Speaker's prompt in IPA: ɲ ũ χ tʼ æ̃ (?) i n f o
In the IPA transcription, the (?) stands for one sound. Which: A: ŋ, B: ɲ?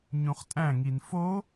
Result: A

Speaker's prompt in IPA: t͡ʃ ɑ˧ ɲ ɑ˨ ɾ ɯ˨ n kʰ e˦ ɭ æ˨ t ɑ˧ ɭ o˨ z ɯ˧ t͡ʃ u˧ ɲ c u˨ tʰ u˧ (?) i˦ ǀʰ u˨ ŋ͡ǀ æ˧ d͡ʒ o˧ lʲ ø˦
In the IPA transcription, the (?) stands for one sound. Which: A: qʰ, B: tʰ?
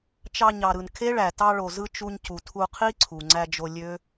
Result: A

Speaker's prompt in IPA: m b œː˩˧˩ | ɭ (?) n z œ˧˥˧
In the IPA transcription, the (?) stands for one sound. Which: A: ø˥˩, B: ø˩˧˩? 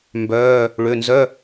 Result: B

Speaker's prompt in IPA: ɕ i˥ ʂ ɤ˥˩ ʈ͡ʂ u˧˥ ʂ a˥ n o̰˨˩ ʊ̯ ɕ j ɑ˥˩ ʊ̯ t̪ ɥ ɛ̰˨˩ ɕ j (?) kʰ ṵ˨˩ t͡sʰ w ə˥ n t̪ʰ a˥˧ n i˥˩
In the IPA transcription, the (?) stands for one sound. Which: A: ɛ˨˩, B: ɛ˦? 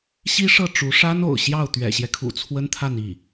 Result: B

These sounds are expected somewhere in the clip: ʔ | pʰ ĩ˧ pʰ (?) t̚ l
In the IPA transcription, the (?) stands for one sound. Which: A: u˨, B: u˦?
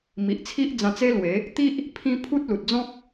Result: B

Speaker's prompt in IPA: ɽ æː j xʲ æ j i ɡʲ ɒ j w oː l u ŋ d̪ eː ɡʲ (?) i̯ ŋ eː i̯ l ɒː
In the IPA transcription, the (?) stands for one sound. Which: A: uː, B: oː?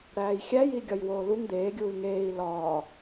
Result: A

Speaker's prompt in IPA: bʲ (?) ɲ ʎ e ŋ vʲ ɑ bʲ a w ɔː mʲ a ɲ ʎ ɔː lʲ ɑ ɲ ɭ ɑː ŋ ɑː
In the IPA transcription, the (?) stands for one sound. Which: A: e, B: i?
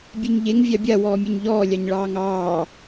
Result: A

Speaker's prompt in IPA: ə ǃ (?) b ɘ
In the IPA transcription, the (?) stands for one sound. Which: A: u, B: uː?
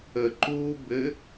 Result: B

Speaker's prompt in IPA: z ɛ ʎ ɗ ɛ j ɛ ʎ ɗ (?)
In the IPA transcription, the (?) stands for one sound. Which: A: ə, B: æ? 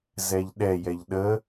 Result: A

